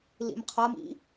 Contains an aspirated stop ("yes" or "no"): yes